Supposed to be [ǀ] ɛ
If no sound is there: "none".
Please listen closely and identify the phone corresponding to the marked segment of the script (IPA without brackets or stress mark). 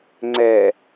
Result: ŋ͡ǀ